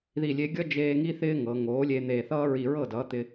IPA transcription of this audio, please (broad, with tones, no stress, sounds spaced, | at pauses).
ð i˧˩ lʲ e˧ ɡʲ ʌ˥ d͡ʒ eː˧ ŋ i˥ θ ɪː˥ ŋ ɤ˩˧ ŋ oː˩˥ lʲ e˧ n̪ e˧˩ θ ʌː˥ ɹ i˧˩ ɹ ɤ˥˩ d ʌː˩˥ t̪ ɪ˧